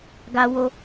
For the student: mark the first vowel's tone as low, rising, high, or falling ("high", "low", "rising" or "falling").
high